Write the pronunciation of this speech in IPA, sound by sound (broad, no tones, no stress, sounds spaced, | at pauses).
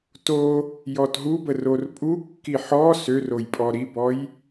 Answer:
t o | j ɔ t ɦ u b ə r o r pʼ u kː i ħ ɔ s ø r o j pʼ ɔ ɾ i b ɔ j